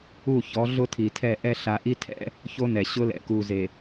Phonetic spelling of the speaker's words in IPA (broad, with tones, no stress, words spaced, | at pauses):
u˦˨çɔ˨˦ ɮʊ˦tʰi˨tʰɛ˦˨ʔɛ˦ ɬa˨ʔi˦tʰɛ̰˦ | ço˦nɛ˨ ɕʊ˦lɛ̰˨ ku˨ze˨